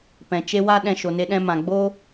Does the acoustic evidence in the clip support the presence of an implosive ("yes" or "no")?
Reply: yes